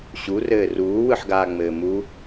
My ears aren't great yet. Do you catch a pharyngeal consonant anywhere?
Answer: yes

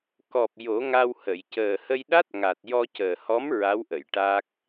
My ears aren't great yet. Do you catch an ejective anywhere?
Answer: no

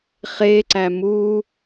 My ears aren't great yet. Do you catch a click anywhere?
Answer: yes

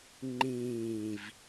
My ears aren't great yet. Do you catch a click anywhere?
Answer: yes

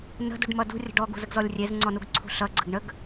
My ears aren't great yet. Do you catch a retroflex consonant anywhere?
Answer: yes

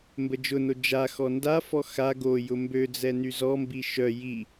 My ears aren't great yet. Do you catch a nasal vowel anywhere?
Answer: no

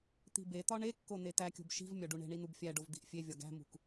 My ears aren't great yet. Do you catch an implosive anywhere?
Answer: no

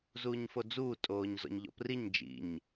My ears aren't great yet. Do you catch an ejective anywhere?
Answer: yes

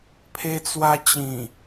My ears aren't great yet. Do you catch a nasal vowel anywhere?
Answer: yes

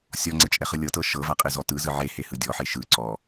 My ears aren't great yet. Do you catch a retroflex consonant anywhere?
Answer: no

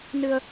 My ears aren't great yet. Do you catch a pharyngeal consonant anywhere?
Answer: no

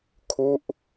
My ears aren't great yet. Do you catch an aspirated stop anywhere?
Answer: yes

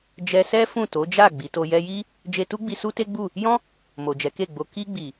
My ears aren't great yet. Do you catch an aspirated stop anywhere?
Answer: no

